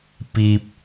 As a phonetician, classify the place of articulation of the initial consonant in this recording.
labial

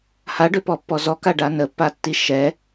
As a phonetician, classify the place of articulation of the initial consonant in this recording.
glottal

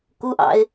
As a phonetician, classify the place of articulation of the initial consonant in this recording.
velar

